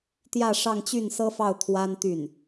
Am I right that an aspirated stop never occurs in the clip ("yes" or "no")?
no